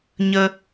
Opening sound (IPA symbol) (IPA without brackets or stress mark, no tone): ɲ